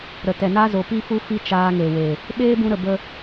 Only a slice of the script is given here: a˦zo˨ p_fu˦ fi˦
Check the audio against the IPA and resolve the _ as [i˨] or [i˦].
i˦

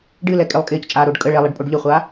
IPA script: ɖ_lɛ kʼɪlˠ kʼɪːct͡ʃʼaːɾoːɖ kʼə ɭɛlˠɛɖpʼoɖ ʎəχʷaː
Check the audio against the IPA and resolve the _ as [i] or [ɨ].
ɨ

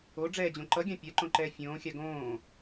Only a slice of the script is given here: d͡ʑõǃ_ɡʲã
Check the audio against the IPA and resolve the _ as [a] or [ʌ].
ʌ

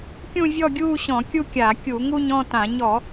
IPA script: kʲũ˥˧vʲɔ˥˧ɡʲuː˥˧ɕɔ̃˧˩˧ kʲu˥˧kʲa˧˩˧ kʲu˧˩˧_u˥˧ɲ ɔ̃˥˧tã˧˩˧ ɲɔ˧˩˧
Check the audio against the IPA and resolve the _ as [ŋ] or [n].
ŋ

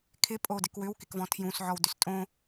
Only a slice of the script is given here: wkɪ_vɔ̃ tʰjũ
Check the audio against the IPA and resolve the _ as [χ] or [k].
k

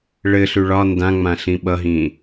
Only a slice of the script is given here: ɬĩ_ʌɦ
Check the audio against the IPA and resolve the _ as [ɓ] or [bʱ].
ɓ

